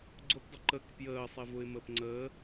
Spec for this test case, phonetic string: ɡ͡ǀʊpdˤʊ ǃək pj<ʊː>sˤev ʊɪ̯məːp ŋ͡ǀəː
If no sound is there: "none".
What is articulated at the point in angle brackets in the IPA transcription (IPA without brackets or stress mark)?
əː